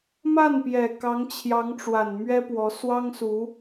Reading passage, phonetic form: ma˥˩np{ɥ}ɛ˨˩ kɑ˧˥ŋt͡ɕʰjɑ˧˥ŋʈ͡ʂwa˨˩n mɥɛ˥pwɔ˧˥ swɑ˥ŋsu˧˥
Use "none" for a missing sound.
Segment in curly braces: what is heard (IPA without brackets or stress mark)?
j